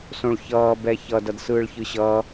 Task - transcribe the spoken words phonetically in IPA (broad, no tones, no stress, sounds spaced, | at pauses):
s õ ɭ ç ʌː b ɛ ç ʌ d ʌ d s ɯː ɭ ç ɯ ɕ ʌː